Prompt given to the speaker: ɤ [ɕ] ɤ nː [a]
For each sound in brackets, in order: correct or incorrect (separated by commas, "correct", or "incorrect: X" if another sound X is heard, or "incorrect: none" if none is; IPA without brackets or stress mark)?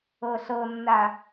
incorrect: ɬ, correct